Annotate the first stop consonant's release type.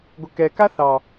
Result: plain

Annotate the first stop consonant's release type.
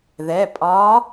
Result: ejective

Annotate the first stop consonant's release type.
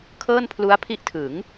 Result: aspirated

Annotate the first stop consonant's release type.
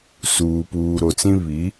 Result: plain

